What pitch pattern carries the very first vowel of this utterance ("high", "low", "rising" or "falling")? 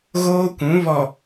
high